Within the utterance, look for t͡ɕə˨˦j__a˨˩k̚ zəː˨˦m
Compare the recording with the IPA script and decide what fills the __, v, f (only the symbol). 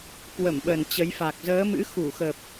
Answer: f